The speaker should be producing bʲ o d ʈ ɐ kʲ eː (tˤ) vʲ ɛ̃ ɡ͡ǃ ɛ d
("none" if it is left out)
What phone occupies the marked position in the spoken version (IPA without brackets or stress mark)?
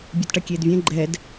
d